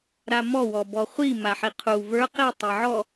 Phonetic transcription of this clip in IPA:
ɾ a m ɔ w ɔ b ɔ χʷ i m a ħ i qʰ u v ə˞ q i tˤ i ʕ ɔ

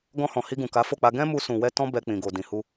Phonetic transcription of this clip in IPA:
ɡ ɔ̃˧ h ɔ̃˨ h i˧ ɡ ũ˨ k a˨˦ f o˦˨ k͡p a˧ ɡ ɛ̃˦ m u˧ s ũ˨ w ɛ˧ t ɔ̃˧ b ɛ˨ k͡p ĩ˨ ɡ o˨ d ĩ˨ h u˧

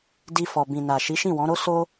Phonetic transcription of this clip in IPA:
d i˧ f ɔ˨ b ĩ˨ n a˨ ʃ i˨˦ ʃ ĩ˦˨ w ɔ̃˨˦ ɾ o˦ s o˦

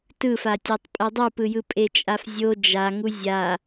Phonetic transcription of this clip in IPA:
t ɯ f a tʲ a tˤ pʼ ɛ dˤ u p ɯ j ɯ pʼ e t͡ʃʼ a f zʲ o d͡ʒ a ŋ u zʲ a

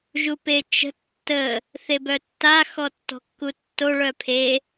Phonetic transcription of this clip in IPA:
ʒ u p e t͡ʃ ə̤ tː ə | θ e b œ tː a x ɔ tː ɔ̤ kː u tː o ɭ œ pʰ e

